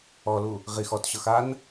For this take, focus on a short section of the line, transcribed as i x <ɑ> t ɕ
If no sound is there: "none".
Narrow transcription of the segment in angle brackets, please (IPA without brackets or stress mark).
ɔ